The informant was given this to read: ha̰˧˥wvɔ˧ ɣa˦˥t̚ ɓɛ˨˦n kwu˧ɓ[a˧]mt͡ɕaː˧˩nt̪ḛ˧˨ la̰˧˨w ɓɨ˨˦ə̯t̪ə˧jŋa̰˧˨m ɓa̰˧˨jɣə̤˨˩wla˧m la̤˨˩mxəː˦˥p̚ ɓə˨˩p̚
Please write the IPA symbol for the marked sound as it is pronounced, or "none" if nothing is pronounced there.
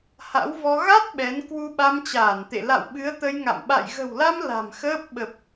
a˧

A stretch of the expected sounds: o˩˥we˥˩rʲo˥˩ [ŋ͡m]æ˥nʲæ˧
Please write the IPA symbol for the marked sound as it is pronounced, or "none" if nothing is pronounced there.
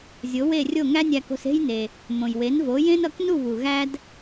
ŋ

